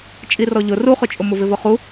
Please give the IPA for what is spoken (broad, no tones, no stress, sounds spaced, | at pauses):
t͡ʃʼ i r ɔ ʎ ʊ r u χ ʊ t͡ʃʼ ʊ m ʊ v ɪ v ʊ χ u